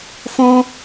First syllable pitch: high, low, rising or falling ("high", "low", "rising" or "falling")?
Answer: high